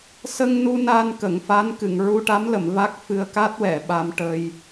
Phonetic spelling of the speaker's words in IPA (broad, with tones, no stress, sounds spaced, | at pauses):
s ə˧ ŋ n u˧ n a˧ n k ə˨˩˨ ŋ f a˧˥ n k ɨ˨˩˨ ŋ ɹ u˧ ʈ a˧˥ m l ə˨˩˨ m v a˦˥ k̚ f ɨ˧ ə̯ k a˦˥ t̚ w ɛ˨˩˨ ɓ a˧ m ʈ ə˧ j